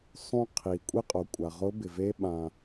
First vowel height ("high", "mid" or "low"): high